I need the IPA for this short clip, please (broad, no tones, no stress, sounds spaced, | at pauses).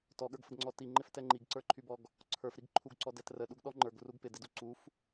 t ɔ ɠ ə˞ ɡ f ə ɡ ŋ͡ǀ ɔ t i ŋ͡ǃ ɪ f t ɛ ŋ͡ǃ i ɡ ǀ ə˞ ǃʰ y b ɔ ɡ | ǀʰ ə˞ f ɾ i ɡ ǃʰ u ɡ ǀ ɔ d ɛ t r ə ɗ u ɡ ɗ ɔ ŋ͡ǃ ə˞ ɡ r u ɡ p ɪ d ɪ d u ǀ u f